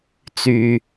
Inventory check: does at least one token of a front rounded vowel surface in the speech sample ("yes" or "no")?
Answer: yes